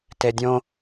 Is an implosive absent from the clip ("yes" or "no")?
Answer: yes